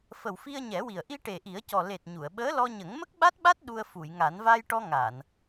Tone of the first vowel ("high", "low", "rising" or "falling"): low